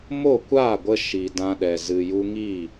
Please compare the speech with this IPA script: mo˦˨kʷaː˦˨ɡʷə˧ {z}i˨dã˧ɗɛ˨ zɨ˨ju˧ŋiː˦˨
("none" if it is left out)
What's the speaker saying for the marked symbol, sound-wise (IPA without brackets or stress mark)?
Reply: ʃ